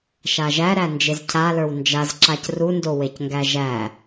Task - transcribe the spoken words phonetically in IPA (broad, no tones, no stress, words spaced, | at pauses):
ʃaʒæɾæ nd͡ʒezcʰalə˞w nd͡ʒaz ǁacrundo wecŋɡæʒæ